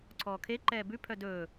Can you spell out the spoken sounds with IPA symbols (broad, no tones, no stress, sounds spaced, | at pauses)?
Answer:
ǀʰ ɔː kʰ e ǃ ɛː b ʉ pʰ œ d ɵː